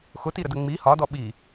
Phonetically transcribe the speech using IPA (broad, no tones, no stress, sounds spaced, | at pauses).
x ʊ t i ɾ ə d ə ŋ͡m i h ɒ d ɔ ɓ i